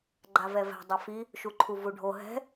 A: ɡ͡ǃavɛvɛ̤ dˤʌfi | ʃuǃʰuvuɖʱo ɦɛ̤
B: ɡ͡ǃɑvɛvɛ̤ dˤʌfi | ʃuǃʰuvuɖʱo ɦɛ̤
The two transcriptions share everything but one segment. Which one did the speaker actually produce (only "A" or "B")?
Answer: A